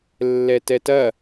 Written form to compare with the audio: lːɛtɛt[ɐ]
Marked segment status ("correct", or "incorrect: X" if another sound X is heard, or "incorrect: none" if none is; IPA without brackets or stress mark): correct